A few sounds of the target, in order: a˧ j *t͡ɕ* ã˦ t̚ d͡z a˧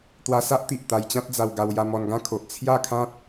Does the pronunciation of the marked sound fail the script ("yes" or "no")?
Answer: no